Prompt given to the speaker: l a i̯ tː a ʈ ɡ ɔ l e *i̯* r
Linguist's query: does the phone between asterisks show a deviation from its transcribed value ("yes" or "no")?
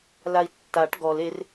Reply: yes